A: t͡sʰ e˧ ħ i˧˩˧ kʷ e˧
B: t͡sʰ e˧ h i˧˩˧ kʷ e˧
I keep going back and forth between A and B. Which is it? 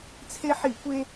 A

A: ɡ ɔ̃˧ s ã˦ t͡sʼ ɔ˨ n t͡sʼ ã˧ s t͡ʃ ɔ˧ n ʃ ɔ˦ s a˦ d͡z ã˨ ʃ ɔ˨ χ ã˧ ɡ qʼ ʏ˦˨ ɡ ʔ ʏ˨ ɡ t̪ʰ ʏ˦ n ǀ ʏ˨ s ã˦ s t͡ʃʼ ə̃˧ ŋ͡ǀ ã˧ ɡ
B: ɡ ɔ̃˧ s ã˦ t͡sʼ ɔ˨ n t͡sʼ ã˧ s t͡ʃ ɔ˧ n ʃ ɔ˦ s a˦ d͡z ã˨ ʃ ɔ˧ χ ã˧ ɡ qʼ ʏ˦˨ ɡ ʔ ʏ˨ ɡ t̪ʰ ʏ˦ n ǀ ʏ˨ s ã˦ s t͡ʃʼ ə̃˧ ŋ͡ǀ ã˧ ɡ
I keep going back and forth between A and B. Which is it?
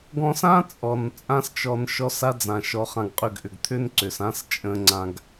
B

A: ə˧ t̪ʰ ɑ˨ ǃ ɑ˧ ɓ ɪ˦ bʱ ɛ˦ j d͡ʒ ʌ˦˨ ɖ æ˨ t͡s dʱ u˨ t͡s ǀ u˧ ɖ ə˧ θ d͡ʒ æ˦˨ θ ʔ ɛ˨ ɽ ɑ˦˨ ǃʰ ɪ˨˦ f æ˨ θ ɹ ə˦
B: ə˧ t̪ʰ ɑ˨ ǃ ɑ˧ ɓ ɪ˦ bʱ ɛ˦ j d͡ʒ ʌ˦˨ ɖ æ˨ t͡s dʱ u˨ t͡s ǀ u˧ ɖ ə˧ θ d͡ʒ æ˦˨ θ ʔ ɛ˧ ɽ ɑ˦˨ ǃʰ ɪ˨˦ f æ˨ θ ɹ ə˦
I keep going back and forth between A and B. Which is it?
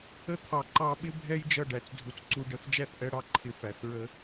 B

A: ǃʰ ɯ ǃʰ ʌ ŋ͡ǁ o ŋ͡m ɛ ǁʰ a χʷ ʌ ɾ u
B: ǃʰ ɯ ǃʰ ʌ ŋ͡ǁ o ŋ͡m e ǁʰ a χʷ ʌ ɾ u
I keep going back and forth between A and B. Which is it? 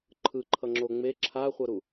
B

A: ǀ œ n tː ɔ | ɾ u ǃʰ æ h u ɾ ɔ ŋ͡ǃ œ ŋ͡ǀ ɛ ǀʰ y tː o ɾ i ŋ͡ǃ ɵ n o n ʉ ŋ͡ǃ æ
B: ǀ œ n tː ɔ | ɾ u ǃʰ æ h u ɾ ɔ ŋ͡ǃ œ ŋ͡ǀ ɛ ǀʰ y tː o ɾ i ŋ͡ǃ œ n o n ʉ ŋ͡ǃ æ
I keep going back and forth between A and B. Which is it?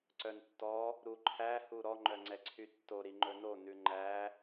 A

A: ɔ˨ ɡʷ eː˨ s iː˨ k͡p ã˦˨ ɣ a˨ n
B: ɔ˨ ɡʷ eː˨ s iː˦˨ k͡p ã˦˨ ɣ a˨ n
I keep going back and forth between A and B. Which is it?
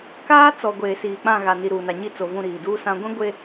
A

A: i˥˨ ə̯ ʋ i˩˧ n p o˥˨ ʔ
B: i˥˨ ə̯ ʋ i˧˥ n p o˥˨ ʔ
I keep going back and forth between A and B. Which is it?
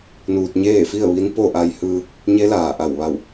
B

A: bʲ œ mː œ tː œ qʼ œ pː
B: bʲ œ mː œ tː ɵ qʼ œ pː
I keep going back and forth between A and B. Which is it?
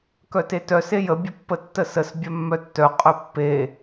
A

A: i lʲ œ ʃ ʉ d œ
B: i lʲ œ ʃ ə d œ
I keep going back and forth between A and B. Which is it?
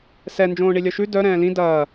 A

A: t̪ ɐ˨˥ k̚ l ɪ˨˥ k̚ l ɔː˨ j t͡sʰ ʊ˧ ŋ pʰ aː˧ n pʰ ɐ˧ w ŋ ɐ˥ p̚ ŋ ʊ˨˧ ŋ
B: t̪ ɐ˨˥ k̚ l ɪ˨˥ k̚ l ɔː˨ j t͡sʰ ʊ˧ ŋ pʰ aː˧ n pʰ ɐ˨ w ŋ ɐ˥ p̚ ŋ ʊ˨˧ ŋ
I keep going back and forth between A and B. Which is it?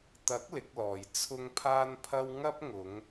A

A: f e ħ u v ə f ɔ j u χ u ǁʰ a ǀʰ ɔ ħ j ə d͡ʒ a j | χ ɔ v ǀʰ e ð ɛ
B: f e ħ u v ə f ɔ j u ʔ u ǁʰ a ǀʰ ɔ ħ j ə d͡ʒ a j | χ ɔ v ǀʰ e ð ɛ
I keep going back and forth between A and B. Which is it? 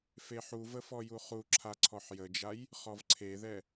A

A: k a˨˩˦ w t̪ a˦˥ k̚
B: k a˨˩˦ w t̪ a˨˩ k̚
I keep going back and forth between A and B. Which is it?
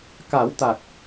B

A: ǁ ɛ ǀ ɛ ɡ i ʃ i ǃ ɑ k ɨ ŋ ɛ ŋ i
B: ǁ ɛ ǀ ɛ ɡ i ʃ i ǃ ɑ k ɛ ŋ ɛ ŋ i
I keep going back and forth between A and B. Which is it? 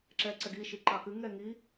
A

